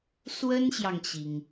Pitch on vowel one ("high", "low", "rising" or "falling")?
high